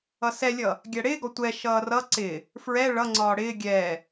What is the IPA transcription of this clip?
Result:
ʌ s ɛ lʲ ʌ | ɡʲ æ ɽ ɪː ɡ ɔ tʷ ɛ ʃ ʌː r ʌ ǀ ɪ | f ɹ ɛ ɭ ʌ ŋ͡ǀ ɒː ɽ ɪː ɡʲ ɛ

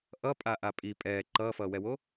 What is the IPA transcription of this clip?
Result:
ʔ ʌ pʼ a ʔ a pʼ i pʼ ɛː ǃ ʌː f ʌː w ɛ w o

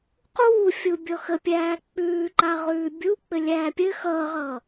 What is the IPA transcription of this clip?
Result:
q uː fʲ u bʲ ɔ x ə pʲ æː k͡p ʉː ǃ a ʁ ʉː bʲ u k͡p ɘ lʲ æː pʲ ɘ x ʌː ʁ ʌː

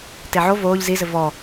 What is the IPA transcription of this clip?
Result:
t e ʕ o v oː ʎ z i z ɘ v ɔ

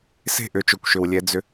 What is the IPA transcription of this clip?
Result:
s e̤˦˨ ʔ ʏ˨˦ t͡ʃ o˨ kʷ ʃ ʏ˨ w lʲ ɛ˧ d͡z ʏ˧

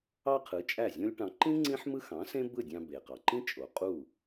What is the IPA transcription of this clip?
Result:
ɑ˥ qʰ ɯ˩˥ t͡ʃʼ æ˥˩ zʲ õ˥ lʲ ʈ ɑ̃˧ ǃ ĩ˥ ŋ͡ǀ ĩ˥ ħ m ɯ˥ x ɑ̃˩˥ s ẽ˥ b ɯ˥˩ dʲ ɑ̃˧ b e˩ q ɑ˩ ǃ ĩ˥ t͡ʃʼ o˩ qʼ u˥˩

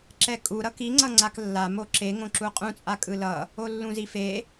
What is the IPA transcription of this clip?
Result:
ǁ ɛ kʼ u ɾ ʌ k i ŋ͡ǀ ʌ ŋ͡ǀ a k lː a m o ǁ e ŋ õ ǁ u qʼ ũ t͡sʼ a kʼ ɯ l ʌ | o lː ũ z i f e

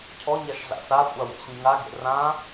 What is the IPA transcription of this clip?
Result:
cʰ ɔ ɲ a ʃ ɮ a̰ s a kʷʼ a w o̰ ɕ ĩ ŋ a ɡ ḛ r ã

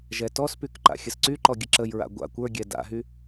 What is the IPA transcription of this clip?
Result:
ʒ ɛ t ɔ s p y k ǃ a̰ xʲ ə s ǀ y ǃ ɔ ɡʲ ə ǁ ə j ɹ a̰ ɡʷ a̰ kʷ ə˞ ɡʲ ɛ d a̰ ɦ y

